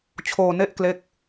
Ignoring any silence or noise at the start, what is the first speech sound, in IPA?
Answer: t͡ɕʰ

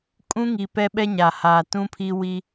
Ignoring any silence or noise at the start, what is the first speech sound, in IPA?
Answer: kʼ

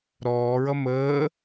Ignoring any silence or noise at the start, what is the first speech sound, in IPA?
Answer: ɾ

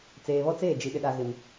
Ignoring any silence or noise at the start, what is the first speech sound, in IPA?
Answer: t͡s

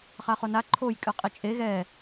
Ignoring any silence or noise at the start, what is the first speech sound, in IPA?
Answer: χ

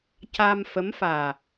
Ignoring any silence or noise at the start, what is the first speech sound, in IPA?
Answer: c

